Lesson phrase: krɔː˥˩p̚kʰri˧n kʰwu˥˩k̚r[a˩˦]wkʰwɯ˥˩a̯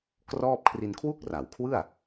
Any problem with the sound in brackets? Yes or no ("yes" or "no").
no